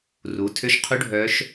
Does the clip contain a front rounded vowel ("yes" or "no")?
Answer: yes